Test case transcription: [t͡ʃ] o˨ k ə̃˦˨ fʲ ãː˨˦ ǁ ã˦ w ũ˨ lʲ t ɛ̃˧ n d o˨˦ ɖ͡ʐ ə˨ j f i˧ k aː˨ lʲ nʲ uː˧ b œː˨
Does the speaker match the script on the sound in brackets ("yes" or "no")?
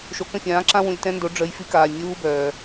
no